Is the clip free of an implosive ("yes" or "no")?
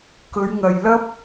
yes